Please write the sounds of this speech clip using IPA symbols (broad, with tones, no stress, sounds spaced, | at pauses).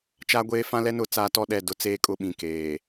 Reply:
t͡ʃ a˦ ɡʷ eː˦ f ã˦ l ɛ˦ n ʊ˦˨ t͡s aː˦ t ɔ˦ ɗ ɛ˦˨ d ʊ˦ t͡s eː˦ kʼ ʊ˦ ɓ ĩ˨ k eː˨